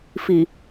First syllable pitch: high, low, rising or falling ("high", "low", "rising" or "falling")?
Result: low